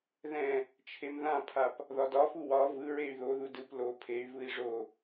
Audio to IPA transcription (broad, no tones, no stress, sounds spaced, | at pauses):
ð ɛ̃ | t͡ʃʰ e m ð ã pʰ a p | ð ɒ d ɒ f u w ɒ v ɯ ɹ e y̯ ð o ð u d ɯ p l o pʰ e y̯ v ɯ i̯ ʐ o